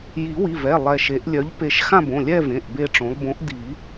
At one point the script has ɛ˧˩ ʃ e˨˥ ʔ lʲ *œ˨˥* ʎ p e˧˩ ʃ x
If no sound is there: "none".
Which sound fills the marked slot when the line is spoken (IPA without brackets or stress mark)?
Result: œ˨˥